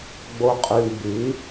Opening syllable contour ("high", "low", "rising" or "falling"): low